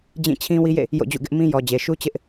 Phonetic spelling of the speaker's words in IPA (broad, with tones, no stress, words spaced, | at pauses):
d͡ʑĩ˦˨ t͡ɕʰĩ˦ wi˦jḛ˦˨ | jo̰˦˨d͡ʑṵ˦˨ɡɪ˦ʔmĩ˦ jɔ˨d͡ʑe˨ʃu˦ t͡ɕɪ˦ʔ